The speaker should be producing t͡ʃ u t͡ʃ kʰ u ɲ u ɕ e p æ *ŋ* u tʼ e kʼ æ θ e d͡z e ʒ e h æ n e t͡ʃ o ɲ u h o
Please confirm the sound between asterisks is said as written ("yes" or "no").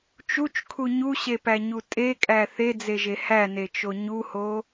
no